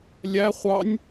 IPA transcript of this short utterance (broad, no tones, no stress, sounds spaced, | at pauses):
lʲ æ χʷ ɑ nʲ